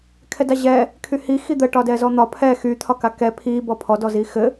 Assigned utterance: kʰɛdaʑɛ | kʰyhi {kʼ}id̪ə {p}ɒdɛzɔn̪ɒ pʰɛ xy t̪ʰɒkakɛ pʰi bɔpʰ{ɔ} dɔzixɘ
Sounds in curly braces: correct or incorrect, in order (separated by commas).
incorrect, incorrect, correct